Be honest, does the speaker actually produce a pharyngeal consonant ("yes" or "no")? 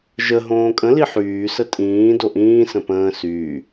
yes